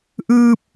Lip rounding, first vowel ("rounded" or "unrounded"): unrounded